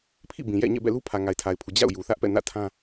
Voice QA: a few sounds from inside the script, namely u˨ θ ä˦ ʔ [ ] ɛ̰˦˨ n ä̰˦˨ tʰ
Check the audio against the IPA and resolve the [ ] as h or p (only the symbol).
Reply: p